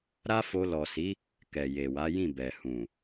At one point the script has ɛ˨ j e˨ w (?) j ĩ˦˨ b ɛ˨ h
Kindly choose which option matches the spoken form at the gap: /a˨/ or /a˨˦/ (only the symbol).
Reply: a˨˦